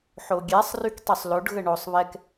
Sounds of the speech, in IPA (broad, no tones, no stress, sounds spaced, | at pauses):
ħ o ɡʲ ɛ sˤ r y k tˤ y sˤ l o ɖ ɣ ə ɳ o sˤ β ɛ k